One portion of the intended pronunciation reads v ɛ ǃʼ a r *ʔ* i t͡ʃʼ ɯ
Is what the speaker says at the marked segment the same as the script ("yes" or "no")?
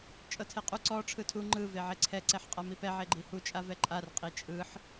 no